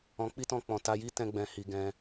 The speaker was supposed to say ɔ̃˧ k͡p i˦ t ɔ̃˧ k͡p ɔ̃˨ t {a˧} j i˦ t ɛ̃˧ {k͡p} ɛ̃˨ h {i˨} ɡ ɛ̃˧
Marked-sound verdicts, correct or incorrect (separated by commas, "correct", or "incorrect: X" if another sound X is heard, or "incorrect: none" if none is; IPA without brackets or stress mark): correct, incorrect: ɡ͡b, correct